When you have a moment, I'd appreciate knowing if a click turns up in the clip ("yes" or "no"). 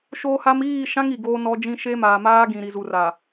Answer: no